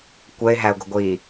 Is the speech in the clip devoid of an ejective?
yes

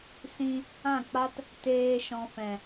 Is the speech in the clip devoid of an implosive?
yes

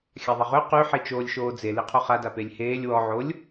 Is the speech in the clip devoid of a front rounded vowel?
no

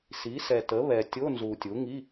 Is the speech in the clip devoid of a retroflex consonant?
yes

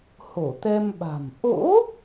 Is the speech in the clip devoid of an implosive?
no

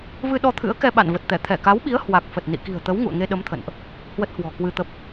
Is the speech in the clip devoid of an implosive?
no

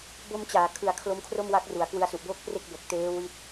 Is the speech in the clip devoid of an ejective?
yes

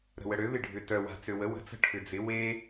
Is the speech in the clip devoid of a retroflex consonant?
no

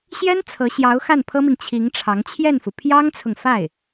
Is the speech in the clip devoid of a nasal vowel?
yes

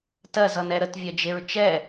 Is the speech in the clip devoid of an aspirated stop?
yes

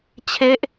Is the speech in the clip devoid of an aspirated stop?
no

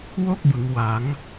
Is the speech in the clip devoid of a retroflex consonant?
yes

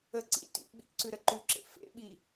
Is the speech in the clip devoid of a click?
no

